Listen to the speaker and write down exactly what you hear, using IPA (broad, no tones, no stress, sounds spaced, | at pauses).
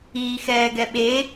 iː x ɛː ɡ ɛ ɓ e